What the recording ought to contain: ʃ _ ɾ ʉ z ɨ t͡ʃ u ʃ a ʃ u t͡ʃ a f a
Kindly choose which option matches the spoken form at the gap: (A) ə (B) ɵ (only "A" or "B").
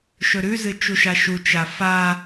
B